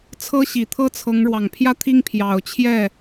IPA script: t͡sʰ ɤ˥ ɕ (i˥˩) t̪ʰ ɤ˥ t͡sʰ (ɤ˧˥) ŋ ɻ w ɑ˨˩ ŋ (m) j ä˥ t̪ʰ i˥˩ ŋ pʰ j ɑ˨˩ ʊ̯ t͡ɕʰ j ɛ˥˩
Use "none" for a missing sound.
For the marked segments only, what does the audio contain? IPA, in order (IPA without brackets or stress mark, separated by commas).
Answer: i˨˩, ɤ˧˥, pʰ